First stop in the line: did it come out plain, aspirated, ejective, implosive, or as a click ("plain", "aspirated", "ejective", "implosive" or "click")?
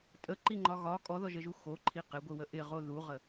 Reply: ejective